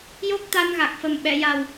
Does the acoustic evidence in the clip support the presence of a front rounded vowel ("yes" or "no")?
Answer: no